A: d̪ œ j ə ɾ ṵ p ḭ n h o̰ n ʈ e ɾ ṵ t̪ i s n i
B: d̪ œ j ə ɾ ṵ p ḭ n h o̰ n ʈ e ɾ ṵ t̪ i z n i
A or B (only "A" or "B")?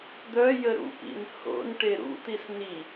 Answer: A